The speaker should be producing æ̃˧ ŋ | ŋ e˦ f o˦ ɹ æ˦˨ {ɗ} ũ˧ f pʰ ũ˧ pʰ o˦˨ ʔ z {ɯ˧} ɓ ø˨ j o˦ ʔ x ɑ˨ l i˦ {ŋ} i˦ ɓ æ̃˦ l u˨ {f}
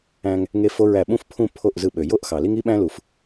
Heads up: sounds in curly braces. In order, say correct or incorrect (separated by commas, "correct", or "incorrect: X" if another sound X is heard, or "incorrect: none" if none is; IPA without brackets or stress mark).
incorrect: ɓ, correct, correct, correct